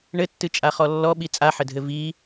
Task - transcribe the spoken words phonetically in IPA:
ɳ ɘ tː ɨ t͡ʃʼ a χ ɔ lː ɔ ɓ i t͡sʼ a ħ ɘ dʱ ɘ v i

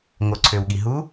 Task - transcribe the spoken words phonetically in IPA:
ŋ o ǀʰ ø w ɠ i ɦ u

